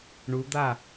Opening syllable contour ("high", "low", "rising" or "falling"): rising